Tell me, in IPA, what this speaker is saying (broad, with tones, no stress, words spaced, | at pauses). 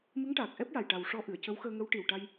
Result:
mɨ˧˥ŋʈaː˨˩k̚ʔɛ˦˥p̚ja˨˩j ʈa˨˩wʂɔ˧ ʔɨ˨˩˨ə̯cə˧˥wxəː˧ ŋə˧˥w ʈi˨˩w ʈa˧j